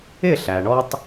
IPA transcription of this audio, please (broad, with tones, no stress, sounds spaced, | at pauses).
ɪ˦˨ ɬ æ˨ ɳ ɔ˦ tˤ